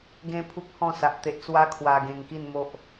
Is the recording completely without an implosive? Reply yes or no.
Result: yes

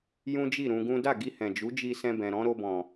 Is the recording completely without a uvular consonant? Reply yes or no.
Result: yes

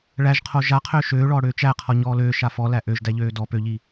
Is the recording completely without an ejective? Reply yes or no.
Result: yes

